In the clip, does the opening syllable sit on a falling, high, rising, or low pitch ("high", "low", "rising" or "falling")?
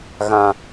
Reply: low